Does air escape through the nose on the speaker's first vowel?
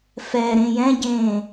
no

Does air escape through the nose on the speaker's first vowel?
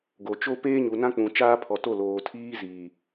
no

